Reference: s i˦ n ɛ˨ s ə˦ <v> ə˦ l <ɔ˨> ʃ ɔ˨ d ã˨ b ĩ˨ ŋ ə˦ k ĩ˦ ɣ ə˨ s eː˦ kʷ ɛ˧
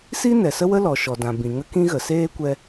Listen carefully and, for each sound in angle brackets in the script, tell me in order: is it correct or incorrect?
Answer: incorrect: w, correct

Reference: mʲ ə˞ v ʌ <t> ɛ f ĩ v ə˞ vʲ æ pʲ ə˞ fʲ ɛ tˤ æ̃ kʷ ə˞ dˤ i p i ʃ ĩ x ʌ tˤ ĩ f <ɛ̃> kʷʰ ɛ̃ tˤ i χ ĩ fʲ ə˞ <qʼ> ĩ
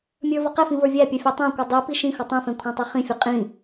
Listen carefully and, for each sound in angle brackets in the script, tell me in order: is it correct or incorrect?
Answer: incorrect: q, correct, correct

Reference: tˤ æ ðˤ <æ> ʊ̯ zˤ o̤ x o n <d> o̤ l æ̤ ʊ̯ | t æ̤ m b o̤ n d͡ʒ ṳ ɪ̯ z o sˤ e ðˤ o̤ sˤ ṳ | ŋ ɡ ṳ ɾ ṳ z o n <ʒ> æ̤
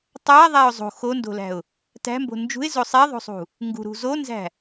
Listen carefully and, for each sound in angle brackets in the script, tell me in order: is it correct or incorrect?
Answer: correct, correct, incorrect: z

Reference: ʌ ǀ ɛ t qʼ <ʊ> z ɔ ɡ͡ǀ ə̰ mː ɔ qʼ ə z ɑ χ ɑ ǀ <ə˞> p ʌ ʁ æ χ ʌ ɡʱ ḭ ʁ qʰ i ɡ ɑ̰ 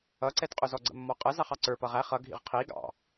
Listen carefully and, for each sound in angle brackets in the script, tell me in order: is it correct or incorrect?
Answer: correct, correct

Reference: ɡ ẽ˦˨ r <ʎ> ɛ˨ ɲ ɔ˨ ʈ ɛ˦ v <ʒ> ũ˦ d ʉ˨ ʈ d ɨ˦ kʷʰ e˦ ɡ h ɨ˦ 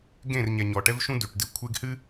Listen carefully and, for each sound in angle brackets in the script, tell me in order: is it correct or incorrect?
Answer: incorrect: ɲ, incorrect: ʃ

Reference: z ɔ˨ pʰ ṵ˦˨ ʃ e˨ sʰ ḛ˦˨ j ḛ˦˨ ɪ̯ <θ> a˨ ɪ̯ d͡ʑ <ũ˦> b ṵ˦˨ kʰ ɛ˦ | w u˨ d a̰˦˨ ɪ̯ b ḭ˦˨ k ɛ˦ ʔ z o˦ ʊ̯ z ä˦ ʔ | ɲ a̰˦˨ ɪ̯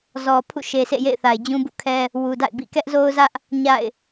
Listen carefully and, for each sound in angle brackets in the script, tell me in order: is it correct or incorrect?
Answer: correct, correct

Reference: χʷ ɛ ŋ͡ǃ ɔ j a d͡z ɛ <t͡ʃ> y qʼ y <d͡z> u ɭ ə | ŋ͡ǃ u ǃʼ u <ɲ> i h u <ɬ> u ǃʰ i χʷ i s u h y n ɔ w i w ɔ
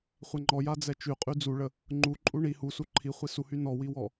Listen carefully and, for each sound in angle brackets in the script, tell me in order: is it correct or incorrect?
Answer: correct, correct, incorrect: ɳ, incorrect: s

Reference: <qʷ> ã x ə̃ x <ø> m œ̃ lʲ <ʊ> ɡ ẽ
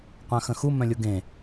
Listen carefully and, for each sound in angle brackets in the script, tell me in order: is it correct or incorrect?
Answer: correct, incorrect: u, correct

